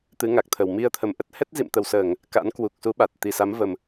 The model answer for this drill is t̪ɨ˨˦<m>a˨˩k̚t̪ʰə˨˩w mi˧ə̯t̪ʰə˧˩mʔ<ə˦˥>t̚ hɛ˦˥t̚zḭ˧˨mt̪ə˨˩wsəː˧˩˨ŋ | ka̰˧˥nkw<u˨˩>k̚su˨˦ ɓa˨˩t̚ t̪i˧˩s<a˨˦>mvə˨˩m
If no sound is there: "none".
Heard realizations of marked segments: ŋ, ə˦˥, u˨˩, a˨˦

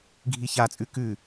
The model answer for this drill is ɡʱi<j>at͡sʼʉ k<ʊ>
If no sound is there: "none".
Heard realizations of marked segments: ç, ʉ

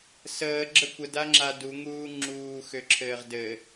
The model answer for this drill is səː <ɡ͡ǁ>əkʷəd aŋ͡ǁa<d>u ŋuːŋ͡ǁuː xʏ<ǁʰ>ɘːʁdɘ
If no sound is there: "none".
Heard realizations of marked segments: ɡ͡ǁ, d, ǁʰ

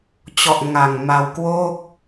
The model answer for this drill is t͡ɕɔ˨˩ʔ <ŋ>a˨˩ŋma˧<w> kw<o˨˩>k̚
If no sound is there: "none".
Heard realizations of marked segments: ŋ, w, o˥˩

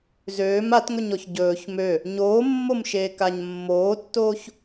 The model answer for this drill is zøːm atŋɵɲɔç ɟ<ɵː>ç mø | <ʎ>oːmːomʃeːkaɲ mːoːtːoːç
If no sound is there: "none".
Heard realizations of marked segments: ɵː, ɲ

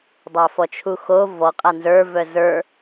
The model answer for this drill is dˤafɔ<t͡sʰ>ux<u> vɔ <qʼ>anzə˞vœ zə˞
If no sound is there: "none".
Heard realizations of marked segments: t͡ʃʰ, o, qʼ

